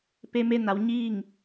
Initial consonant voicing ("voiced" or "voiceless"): voiceless